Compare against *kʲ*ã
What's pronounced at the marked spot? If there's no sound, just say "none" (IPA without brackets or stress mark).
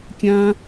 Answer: kʲ